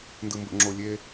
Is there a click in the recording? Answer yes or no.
yes